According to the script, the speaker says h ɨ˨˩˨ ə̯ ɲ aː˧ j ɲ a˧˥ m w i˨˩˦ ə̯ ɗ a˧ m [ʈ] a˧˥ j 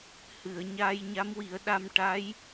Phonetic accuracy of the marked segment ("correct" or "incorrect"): correct